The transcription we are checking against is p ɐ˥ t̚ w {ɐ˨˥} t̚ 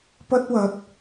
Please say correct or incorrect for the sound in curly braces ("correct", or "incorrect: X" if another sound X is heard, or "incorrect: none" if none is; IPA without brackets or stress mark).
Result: correct